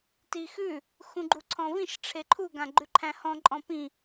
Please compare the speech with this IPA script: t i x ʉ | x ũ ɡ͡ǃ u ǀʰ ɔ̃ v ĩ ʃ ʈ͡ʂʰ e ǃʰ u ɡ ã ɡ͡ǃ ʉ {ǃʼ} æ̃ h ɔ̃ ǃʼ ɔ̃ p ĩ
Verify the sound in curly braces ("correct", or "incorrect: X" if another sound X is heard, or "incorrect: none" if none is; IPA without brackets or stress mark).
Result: incorrect: ǃʰ